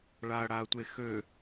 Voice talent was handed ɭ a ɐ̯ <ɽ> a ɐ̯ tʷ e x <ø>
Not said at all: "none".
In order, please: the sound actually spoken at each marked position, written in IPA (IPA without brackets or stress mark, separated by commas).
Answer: ɽ, ø